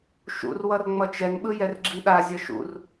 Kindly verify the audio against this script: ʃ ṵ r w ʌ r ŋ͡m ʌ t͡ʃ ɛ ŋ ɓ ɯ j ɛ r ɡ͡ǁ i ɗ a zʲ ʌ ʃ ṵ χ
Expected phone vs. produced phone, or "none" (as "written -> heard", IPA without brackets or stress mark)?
χ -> r